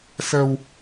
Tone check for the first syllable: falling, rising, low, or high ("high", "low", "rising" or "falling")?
low